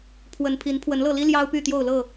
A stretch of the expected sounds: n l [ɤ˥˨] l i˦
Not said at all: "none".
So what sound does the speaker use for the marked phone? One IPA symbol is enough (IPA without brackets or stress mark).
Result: ɤ˥˨